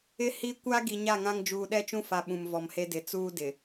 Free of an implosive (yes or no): no